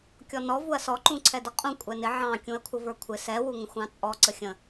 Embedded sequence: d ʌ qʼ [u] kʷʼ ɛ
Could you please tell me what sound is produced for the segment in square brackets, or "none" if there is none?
ũ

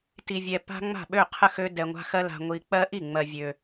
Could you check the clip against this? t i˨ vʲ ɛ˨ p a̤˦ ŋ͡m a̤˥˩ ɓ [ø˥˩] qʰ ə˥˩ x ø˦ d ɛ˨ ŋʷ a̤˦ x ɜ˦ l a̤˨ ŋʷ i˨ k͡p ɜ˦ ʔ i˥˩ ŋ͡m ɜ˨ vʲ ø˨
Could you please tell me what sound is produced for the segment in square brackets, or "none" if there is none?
ø˥˩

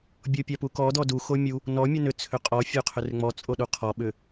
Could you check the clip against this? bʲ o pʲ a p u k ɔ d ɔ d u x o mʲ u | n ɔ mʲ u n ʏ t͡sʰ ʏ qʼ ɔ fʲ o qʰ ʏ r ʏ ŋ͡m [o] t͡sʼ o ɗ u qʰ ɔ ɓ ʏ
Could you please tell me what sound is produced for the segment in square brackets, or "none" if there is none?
ɔ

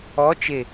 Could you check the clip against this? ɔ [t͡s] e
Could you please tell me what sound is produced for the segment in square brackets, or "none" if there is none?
t͡ʃ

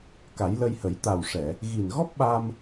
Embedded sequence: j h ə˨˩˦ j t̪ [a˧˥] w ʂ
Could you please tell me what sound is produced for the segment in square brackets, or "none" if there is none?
a˨˩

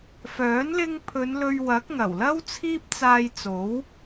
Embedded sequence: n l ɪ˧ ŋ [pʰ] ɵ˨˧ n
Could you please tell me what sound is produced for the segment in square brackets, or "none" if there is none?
pʰ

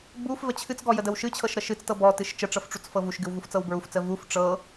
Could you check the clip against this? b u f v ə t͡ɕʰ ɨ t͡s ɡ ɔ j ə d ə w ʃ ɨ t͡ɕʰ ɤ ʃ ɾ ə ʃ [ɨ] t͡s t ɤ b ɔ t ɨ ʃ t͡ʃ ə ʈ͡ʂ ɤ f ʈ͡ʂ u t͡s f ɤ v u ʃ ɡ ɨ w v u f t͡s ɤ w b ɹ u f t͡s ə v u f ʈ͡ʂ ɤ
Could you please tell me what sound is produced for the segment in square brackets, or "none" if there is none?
ɨ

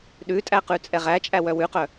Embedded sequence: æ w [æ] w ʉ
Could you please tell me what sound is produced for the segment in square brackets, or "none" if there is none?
œ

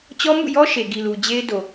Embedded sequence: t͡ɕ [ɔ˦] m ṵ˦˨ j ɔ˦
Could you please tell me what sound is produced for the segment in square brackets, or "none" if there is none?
ɔ˦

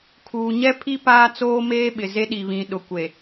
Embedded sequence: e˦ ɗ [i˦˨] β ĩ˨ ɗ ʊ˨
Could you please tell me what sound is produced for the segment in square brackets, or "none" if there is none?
i˨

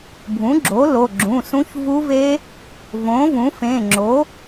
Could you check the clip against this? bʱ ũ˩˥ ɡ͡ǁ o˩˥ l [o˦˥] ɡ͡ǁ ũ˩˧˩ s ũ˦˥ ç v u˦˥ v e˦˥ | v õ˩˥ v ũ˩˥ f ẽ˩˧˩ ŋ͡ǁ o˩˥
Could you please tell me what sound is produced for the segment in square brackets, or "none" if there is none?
o˩˧˩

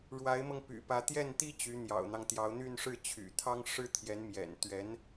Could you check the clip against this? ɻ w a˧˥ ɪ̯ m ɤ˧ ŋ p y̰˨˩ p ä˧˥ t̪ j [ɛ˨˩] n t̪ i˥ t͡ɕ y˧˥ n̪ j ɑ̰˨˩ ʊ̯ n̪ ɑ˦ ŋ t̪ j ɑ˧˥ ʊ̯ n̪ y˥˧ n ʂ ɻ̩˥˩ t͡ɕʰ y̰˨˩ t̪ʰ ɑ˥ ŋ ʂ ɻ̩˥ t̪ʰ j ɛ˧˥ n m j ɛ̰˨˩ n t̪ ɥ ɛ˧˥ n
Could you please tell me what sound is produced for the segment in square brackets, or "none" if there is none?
ɛ˥˩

